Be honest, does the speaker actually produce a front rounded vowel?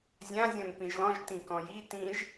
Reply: no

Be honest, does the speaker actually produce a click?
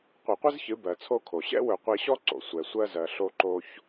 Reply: yes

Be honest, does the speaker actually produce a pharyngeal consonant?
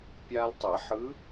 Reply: yes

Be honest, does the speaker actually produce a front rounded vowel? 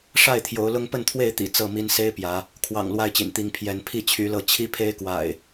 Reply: yes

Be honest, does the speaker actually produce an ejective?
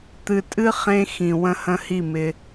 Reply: yes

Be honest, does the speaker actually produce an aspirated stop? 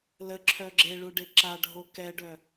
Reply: yes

